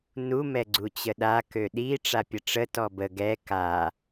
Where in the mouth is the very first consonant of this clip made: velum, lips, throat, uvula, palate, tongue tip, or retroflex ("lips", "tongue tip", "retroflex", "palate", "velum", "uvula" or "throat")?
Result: tongue tip